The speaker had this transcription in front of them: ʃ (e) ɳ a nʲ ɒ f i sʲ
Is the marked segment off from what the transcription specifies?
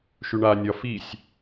yes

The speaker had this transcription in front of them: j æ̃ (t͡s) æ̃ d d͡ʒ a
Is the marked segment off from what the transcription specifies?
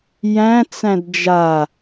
no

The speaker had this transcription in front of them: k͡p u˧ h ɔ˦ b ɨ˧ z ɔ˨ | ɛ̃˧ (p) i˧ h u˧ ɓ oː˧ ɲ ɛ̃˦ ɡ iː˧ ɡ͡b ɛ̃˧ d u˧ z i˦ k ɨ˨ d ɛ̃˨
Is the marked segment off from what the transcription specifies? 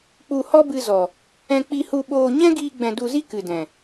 yes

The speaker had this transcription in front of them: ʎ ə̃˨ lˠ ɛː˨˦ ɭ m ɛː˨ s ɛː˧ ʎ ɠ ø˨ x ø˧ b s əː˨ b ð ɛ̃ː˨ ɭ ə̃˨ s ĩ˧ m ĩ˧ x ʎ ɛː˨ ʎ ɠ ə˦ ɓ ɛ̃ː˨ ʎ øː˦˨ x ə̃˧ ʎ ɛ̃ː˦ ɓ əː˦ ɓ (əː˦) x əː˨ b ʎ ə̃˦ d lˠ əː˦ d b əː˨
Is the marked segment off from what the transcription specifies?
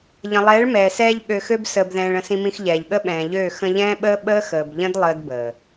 no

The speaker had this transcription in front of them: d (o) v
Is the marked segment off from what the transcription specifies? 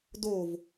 no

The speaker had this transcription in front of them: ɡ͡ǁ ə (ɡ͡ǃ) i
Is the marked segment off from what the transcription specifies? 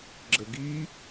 yes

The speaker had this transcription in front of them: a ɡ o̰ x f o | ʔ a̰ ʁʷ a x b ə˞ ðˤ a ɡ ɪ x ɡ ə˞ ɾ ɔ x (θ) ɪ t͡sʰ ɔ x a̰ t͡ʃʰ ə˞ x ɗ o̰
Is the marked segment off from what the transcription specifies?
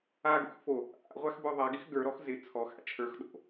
yes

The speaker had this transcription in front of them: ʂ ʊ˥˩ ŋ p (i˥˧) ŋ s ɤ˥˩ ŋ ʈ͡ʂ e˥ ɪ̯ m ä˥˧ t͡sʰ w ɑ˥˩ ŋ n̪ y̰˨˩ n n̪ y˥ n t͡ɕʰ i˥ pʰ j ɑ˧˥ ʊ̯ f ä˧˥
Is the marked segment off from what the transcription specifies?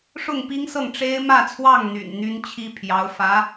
yes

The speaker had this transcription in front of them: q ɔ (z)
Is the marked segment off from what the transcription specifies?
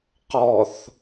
yes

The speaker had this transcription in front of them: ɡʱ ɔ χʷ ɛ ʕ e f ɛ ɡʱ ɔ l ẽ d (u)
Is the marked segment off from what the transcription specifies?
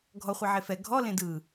yes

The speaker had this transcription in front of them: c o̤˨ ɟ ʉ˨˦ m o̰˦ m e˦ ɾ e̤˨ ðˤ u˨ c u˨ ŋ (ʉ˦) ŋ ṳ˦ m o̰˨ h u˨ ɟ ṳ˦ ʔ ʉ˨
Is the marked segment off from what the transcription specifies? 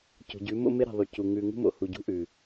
no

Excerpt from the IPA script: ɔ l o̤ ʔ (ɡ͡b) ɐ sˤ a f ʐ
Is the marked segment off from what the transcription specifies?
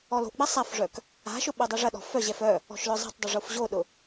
no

